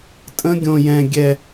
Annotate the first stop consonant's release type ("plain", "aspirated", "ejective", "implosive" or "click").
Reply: ejective